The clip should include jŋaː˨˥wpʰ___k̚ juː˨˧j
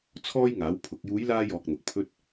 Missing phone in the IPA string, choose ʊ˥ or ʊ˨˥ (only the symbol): ʊ˨˥